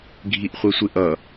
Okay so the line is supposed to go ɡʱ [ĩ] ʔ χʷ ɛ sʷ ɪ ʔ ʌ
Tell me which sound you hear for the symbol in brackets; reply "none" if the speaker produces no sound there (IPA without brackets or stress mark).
i